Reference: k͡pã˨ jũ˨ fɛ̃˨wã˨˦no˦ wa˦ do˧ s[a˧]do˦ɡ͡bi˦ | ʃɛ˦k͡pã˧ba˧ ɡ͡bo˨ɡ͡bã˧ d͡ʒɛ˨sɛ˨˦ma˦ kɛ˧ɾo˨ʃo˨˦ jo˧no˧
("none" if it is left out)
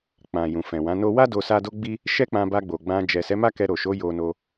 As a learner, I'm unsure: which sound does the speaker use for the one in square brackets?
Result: a˦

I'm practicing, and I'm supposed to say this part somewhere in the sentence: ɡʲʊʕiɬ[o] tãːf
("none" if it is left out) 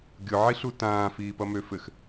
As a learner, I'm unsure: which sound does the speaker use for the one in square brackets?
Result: u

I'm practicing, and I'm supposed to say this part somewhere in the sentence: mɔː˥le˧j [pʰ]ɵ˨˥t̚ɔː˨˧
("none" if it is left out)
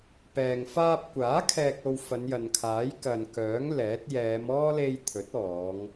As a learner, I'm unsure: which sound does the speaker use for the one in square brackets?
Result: t̪ʰ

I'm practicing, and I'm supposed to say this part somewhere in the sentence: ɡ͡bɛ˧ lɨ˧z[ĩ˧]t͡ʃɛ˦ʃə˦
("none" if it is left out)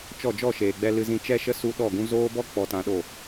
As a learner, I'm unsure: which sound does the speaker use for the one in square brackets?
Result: ĩ˧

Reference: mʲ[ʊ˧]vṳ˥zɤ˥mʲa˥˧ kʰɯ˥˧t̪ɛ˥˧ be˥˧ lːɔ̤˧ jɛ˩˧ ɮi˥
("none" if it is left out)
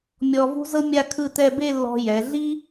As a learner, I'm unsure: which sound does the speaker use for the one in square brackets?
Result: ɔ˧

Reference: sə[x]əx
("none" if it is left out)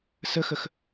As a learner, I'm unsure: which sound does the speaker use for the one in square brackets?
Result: x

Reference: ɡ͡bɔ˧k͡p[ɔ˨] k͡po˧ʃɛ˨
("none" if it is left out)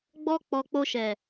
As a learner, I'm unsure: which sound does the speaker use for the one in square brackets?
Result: ɔ˨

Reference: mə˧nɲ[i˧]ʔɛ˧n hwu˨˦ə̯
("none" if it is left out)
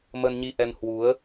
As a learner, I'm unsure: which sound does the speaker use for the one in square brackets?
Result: i˧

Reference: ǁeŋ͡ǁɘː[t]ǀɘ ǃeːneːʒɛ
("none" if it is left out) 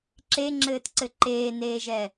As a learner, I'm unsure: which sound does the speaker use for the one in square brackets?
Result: t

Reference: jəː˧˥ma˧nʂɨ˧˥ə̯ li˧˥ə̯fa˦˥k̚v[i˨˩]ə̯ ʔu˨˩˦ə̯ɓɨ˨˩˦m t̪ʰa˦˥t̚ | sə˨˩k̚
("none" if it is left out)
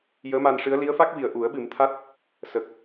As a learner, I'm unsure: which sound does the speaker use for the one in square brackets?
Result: i˨˩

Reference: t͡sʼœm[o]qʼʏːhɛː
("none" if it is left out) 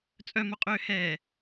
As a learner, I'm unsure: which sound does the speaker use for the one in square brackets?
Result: o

